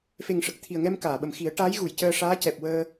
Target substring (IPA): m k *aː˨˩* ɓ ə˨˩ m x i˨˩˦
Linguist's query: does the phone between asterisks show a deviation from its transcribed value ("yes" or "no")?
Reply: yes